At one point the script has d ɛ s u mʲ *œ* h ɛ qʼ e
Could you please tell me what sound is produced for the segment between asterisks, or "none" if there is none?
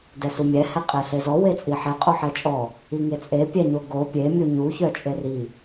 ɛ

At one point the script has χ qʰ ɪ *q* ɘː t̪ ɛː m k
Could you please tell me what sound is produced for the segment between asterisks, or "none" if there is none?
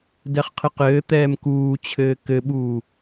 q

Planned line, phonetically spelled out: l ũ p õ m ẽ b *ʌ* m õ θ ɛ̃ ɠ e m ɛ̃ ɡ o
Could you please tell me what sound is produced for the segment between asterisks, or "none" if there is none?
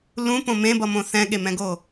ʌ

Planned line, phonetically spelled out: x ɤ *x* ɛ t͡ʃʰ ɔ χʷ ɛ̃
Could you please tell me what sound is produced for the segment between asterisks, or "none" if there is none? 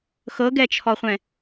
ɡ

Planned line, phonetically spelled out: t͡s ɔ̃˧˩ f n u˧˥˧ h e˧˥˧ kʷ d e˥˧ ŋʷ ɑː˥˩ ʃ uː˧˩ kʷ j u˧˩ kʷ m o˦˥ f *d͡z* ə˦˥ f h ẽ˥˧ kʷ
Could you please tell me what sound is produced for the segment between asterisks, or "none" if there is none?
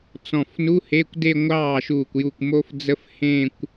d͡z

